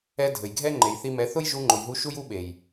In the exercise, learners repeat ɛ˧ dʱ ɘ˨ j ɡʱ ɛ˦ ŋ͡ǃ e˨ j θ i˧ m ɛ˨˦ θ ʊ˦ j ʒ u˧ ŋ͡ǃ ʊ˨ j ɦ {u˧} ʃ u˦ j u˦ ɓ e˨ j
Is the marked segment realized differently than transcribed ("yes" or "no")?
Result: no